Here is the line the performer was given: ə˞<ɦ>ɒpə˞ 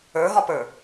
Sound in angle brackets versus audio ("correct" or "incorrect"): correct